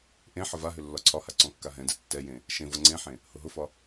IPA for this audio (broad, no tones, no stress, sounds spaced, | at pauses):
ʔ ẽ ħ ə v a ɦ ʏ lː ɒ ǀʰ ɒ h a ǀ ɔ̃ kː a ɦ ɛ̃ d ɛ tː ɛ j ẽ | ʃ ẽ v ɤ ŋ͡ǀ ẽ ħ ẽ | h ʊ ɦ ʊ f ɒ